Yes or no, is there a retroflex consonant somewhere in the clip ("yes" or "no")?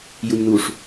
yes